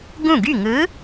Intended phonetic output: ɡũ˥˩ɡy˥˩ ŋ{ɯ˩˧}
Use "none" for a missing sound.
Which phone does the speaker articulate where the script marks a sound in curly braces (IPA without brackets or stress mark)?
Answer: ɯ˨˥